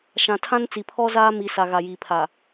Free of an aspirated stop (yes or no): no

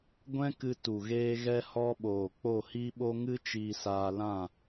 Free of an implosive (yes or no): no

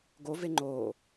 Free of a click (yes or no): no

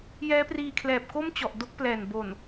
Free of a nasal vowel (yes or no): yes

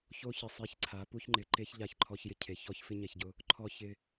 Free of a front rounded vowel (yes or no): yes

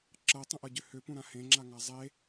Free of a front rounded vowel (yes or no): no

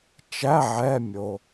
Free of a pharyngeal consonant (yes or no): no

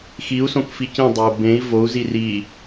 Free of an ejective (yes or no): yes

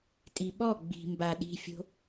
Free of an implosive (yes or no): no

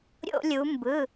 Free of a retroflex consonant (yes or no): yes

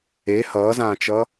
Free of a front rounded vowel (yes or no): yes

